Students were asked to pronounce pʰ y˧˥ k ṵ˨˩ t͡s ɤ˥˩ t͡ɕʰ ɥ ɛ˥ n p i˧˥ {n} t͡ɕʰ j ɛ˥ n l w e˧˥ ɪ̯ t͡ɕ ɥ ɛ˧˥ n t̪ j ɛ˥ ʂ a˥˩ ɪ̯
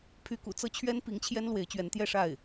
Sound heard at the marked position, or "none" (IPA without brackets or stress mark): ŋ